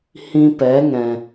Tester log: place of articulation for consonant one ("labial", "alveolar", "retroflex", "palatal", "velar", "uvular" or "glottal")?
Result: glottal